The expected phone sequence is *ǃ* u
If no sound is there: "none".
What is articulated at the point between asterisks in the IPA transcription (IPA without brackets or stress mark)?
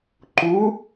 ǃ